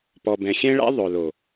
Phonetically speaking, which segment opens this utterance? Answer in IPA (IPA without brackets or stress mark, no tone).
p